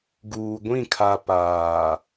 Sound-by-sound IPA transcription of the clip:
ɡ uː˨ ɡʷ ĩ˦˨ kʰ a˨ p aː˨

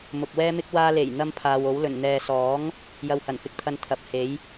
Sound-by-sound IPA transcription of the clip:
m ʊ˨ k̚ w ɛː˥ m ɪ˥ k̚ w aː˧ l e˨˩ j n̪ ɐ˥ m pʰ aː˨ w o˨˥ w l ɵ˨˩ n n̪ ɛː˨ s ɔː˨˥ ŋ | j ɐ˧ w h ɐ˨˩ n f ɪ˧ k̚ t̪ʰ ɐ˧ n t̪ʰ ɐ˨˥ p̚ h e˨˥ j

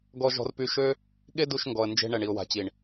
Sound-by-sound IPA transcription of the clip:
ɡ ɔ˧ ʒ ɔ̤˧ r p y˧ ʃ ø˦ | ɠ e˦ d u˧ ʃ ŋ ɡ ɔ˨ ə̯ n d͡ʒ e̤˧ ɳ ɛ˨ ɳ i˨ ʊ̯ w a̤˨ t͡ɕ i˨ ɳ

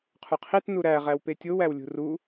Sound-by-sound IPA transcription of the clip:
qʰ u qʰ i t n u ɾ æ ʁ æ w p e tʲ o w æ w lʲ ṳ r u

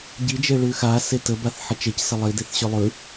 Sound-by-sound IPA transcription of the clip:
ɟ i d͡ʒ e ɭ ʉ x a s e t ə b a θ ħ ə t͡ʃ e c s ə lˠ i d e θ ɕ ʉ lˠ ʉ

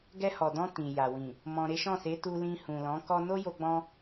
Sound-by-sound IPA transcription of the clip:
ɡ ɛ˧ h ɔ˨ d ɔ̃˧ t ĩ˨ j a˨ w ĩ˨ | m ɔ̃˧ ɾ e˦ ʃ ɔ̃˦˨ s e˨˦ t u˧ l ĩ˧ h ũ˨ l ɔ̃˨˦ k ɔ˦ n o˦ j o˧ ɡ͡b ɔ̃˧

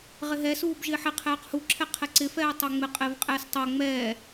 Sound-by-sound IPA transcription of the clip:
ʁ ɪ ɦ ɛ s uː b ʒ ɪː ħ ɪ qʰ ɛː q h u ǁʰ ɛ qʰ ɛ ǀ ɪ f ɛː tˤ o ŋ͡m ɪ qʼ ɪː v qʼ ɛː s tˤ o ŋ͡m ɛː

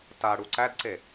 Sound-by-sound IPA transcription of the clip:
t a ɽ u ǀ æ d ǀ e

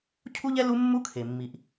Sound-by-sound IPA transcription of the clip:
cʰ u˥ ʎ ɛ˥ l u˥ mː u˥ kʰ e˩ mː i˩ ʔ

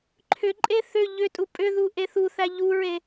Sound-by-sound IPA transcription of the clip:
ǃʰ ʏ ǃʼ e θ ʏ ʎ ʏ tʼ u pʼ ʏ ð u ʔ e θ u θ æ ʎ u ɹ e

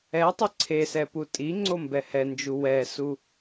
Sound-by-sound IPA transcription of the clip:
ɛ tˤ ɨ ǀʰ e s ɛ p u tʼ i ŋ͡ǀ o m b ɛ h ɛ n d͡ʒ u w ɛ s u

